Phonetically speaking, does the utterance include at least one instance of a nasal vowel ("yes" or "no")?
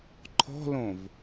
yes